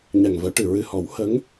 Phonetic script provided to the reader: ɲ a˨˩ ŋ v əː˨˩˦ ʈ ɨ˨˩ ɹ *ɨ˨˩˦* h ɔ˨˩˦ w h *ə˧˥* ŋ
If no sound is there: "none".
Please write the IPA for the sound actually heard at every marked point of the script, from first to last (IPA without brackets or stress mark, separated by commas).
ɨ˨˩, ə˧˥